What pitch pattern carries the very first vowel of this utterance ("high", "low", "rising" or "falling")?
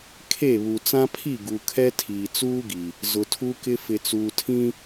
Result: falling